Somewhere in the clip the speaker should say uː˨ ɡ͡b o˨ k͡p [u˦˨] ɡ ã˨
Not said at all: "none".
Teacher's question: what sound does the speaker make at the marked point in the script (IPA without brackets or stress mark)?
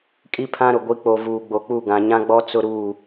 u˦˨